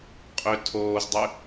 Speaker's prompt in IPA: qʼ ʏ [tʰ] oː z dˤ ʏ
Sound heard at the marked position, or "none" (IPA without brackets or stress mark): tʰ